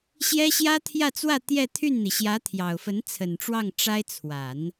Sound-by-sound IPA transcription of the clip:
ɕjɛ˥ɕjä˥t̪ʰjä˥˧t͡swä˥˧ t̪jɛ˥˧t̪ʰy˥˩nn̪i˩ ɕjä˧˥t̪ʰjɑ˨˩ʊ̯fə˧˥n t͡sʰə˨˩nʈ͡ʂwɑ˥˩ŋ ʈ͡ʂa˥ɪ̯ t͡sʰwa˨˩˦n

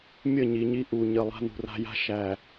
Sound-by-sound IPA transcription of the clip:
mʲə˦˨ɲi˨ɲi˦ ʔu˨ ɲə˨ lˠa̤˦nṳ˨ra̤˦ja̤˦ ʃæ˨

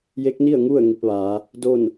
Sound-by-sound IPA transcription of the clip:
je˧˥k̚ni˥˨ə̯ŋu˥˨ə̯ ŋi˧p̚ʋaː˩˧ | do˥˨n

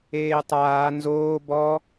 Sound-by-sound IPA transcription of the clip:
eːtˤaː nzoː bɔ

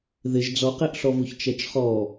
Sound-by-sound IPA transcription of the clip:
ðɪʒ d͡zɔqeʔɬɔvuç t͡ʃɛt͡ʃχɔ

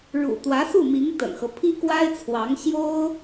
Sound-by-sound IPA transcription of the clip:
ɻṵ˨˩t̪wä˧˥su˥˩mi˧˥ŋ t̪ə̰˨˩nxɤ˦ pʰi˥kwa˥ɪ̯t͡sʰwɑ˧˥ŋ ɕjo˥ʊ̯

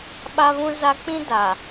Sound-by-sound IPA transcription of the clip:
ɓa˦βũ˦za˦ k͡pĩ˦da˨

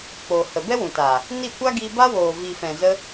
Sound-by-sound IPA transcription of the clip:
k͡poː˨hə˨ bɛ˦wũ˨taː˨ | ni˦˨ kʷa˦ ɡi˧ ba˦woː˨ vi˨fɛ̃˨ zə˧

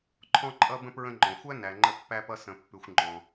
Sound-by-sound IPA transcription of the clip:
ǃʰɔ̃˧ǃʼʌ˧bə̃˧ pɹə̃˧ŋ͡ǃɔ̃˩xʷæ˥ næ˩ŋ͡ǃə˧pːæ˧pʌ˧ sə̃˩pːʉ˩xʷ ŋ͡ǃɔ̃˩

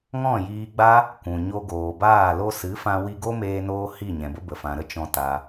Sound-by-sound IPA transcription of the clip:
ŋɔ̃˦˨jiː˧ɡ͡ba˦ | kʷũ˨ ɲo˧ɡoː˨baː˦˨ lo˧sɨ˨˦fã˧ wi˧ɡo˦meː˧noː˧ hi˦˨ɲɛ̃˨bə˦ bə˨fã˨ɾə˦ t͡ʃɔ̃˨ ta˧

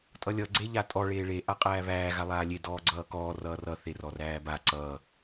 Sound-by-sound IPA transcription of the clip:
tʼʌlʲʌ ɡ͡ǀeʎatʼɔ ɭeːɭe ʔaqʼæːβæː ɣalˠaːlʲe dɔːɡ͡ǀʌːkɔː rʌːrʌ θerɔræːba ǀʌː

